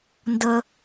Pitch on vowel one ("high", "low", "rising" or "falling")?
low